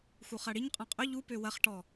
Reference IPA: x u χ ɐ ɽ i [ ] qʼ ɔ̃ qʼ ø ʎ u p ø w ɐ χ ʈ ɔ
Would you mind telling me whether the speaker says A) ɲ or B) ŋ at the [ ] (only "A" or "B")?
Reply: A